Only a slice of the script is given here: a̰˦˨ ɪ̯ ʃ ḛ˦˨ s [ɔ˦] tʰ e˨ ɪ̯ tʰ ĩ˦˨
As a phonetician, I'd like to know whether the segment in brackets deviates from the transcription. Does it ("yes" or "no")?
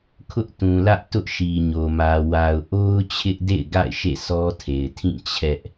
no